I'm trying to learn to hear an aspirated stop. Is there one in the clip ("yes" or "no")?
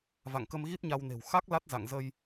no